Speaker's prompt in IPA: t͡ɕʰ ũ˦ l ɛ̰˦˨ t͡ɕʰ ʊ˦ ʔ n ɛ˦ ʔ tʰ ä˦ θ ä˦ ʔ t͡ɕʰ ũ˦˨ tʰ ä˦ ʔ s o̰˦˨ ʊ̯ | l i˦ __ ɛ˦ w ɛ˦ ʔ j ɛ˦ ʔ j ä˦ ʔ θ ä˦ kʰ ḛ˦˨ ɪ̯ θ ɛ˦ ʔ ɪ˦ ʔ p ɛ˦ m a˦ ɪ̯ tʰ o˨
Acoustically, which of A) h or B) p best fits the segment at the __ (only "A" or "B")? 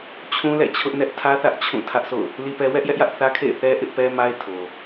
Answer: B